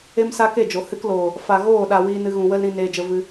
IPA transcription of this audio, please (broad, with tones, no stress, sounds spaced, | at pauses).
e˦ m s a˦ k e˦˨ d͡ʒ o˨ h ɨ˧ k l oː˨ | f a˨ ɣ oː˦˨ ɗ a˨ w iː˧ n ɨ˧ ɣ ũ˨ w ə˦ l ɾ ĩ˧ n eː˧ d͡ʒ ə˧ v ɨ˧